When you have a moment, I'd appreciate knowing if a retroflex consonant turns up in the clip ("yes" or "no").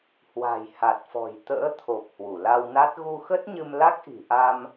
no